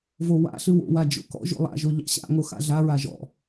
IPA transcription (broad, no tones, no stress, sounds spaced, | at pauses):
v o w a̰ ɬ ɨ w o̰ w a d͡ʒ o̰ k ɔ̰ ʒ o̰ lˠ a̰ ʒ o ʎ ɑ̰ ɕ a̰ ŋ o x a̰ ɮ a ɹ a ʒ ɔ̰